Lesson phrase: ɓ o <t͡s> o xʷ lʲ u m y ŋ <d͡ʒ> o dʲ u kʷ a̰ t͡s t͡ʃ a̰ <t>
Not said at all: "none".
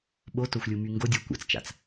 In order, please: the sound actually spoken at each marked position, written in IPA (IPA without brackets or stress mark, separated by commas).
t, ɡ, t͡s